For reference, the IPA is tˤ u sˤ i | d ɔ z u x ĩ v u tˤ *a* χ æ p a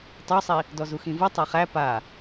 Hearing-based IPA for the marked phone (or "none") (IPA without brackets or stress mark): a